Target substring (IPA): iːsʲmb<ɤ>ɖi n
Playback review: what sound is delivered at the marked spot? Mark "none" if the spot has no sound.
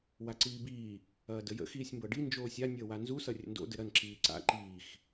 ɤ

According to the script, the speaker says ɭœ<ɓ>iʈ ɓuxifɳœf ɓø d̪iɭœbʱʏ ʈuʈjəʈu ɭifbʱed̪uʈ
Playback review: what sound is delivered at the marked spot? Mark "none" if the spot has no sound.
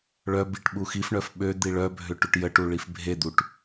b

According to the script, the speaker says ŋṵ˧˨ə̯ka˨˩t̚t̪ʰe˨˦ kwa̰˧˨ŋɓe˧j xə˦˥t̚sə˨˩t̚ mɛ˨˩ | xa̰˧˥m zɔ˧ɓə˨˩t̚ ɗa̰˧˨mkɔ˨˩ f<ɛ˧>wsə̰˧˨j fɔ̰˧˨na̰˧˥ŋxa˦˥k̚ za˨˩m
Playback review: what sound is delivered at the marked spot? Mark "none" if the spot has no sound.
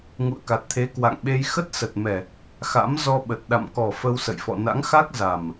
ə˧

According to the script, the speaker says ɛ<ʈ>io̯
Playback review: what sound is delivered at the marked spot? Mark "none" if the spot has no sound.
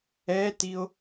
t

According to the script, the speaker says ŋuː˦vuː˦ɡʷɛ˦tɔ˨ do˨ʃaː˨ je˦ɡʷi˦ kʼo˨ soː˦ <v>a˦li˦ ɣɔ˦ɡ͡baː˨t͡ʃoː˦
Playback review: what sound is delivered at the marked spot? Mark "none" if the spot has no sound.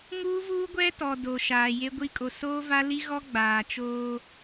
v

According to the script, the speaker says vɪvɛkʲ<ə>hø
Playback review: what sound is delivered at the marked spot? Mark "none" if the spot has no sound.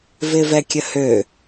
ə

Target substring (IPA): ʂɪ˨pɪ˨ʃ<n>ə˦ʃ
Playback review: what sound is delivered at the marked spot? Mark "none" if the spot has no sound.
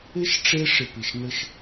n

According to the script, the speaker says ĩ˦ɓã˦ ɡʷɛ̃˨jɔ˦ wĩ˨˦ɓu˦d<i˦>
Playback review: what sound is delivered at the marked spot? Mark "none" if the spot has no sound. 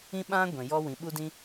ĩ˦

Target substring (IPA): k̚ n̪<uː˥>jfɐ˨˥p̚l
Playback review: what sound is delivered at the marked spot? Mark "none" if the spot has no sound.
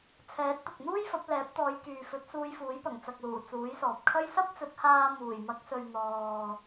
uː˥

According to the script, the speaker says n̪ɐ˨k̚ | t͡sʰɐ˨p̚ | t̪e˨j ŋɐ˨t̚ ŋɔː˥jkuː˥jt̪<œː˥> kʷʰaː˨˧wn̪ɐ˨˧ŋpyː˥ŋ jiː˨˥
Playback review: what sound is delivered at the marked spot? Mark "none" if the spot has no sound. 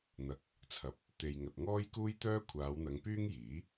œː˥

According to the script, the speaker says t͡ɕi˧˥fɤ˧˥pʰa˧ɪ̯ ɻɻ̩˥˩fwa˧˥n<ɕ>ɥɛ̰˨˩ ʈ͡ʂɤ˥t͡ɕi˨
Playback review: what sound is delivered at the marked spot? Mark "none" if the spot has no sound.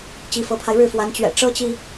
t͡ɕ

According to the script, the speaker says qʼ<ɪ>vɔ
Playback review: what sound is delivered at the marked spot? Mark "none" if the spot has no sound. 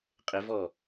ɪ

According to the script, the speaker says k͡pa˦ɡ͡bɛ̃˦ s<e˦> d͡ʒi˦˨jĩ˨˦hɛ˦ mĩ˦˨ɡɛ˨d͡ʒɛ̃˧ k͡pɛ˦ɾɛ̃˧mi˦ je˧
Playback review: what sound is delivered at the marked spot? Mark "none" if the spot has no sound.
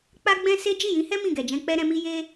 e˦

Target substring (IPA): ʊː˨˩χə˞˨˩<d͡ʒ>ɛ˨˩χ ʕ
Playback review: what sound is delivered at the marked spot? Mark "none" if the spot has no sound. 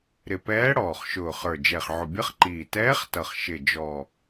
d͡ʒ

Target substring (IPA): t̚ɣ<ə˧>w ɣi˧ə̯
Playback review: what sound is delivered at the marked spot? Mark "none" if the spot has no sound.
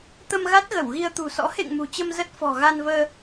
ə˧˩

